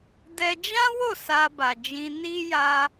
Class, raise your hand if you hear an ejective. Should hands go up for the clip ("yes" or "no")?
no